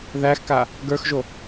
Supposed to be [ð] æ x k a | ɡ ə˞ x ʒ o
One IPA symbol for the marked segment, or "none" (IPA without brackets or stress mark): ð